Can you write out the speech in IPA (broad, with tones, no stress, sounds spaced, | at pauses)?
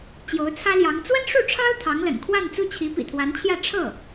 t͡ɕ j o˧˥ ʊ̯ t͡sʰ ä˥ l j ɑ˧˥ ŋ t͡s w ə˥ n ʂ u˥˩ ʈ͡ʂʰ ɑ˥ ʊ̯ t̪ʰ ɑ˧˥ ŋ l ə̰˨˩ n kʰ w a˥˧ n t͡s u˥˩ t͡ɕʰ i˧˥ p ḭ˨˩ t̪ʰ w a˧˥ n t͡ɕʰ j ä˥˧ ʈ͡ʂʰ ɤ˥˩